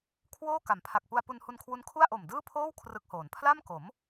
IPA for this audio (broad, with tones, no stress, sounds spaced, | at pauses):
kʰ w oː˥˩ k a˩˦ m pʰ a˨˩ k̚ p u˧ a̯ p u˧ n h u˧ n kʰ w u˦˥ n kʰ u˥˩ a̯ ʔ o˨˩ m d ɯː˥˩ pʰ oː˥˩ w kʰ r ɯ˦˥ k̚ h oː˩˦ n pʰ l a˥˩ m k o˩˦ m